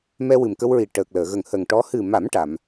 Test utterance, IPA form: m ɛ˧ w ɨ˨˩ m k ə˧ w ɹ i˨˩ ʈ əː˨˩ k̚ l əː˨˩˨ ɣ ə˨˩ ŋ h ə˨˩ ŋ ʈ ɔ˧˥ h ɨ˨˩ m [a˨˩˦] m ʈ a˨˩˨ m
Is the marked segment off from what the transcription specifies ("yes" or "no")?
no